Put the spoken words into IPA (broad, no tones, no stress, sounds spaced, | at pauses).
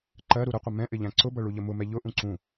ǃ ɜ ɾ u ɾ ə qʷ ə m ɛ̃ ʔ ɪ ʎ æ̃ ǀ ʊ b ʌ ɭ u ʎ ə m ʊ m ɛ ʎ ʊ ʔ ũ ǀ ũ